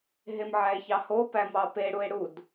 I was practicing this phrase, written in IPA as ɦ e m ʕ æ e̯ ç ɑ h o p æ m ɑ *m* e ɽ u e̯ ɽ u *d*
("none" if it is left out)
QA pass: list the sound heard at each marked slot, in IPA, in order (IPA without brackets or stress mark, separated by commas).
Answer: p, d